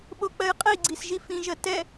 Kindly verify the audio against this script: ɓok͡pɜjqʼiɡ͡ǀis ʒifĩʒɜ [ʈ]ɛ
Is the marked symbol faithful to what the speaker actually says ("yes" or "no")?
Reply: no